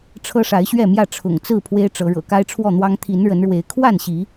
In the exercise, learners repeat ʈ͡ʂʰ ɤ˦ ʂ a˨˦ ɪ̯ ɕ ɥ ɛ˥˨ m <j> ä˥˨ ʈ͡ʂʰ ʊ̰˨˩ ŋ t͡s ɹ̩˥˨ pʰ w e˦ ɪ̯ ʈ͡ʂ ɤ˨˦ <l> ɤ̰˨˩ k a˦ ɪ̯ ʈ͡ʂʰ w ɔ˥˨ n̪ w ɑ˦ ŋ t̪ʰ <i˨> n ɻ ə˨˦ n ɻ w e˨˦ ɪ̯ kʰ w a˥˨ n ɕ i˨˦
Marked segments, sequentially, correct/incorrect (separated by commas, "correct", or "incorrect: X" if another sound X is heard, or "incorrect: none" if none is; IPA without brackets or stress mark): correct, incorrect: ɻ, incorrect: i˨˦